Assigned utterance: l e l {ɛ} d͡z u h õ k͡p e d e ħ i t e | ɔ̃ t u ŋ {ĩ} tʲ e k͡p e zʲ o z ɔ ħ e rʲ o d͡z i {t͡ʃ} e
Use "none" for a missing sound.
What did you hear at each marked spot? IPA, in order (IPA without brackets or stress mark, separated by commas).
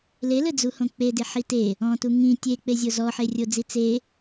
ɘ, ĩ, t͡s